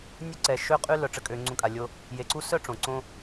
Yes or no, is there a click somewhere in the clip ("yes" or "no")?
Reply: yes